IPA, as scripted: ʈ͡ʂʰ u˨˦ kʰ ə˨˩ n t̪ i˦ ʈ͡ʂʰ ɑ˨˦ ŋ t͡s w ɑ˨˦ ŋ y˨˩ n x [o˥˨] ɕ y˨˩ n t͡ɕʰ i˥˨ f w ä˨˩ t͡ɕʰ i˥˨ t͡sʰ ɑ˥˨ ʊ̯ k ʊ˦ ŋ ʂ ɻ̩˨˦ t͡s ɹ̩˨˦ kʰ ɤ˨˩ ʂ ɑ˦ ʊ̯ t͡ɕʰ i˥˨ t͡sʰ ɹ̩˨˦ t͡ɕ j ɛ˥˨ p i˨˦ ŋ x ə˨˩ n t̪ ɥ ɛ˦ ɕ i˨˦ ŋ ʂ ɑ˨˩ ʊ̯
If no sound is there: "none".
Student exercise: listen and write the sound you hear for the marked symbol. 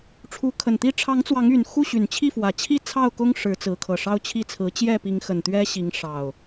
u˥˨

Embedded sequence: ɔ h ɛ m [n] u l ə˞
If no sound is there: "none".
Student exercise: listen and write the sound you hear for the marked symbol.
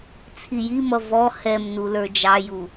n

